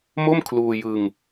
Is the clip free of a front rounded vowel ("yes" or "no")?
yes